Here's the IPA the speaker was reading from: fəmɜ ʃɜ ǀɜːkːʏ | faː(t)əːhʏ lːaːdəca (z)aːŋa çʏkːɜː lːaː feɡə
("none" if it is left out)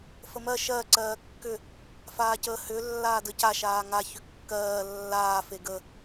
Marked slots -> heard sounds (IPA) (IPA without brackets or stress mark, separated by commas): c, ʃ